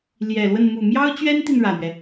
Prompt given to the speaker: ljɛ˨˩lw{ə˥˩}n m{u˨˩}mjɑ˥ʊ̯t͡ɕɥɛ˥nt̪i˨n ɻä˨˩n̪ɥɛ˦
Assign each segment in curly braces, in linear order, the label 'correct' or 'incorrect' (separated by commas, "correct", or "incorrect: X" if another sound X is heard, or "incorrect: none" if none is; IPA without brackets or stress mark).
correct, correct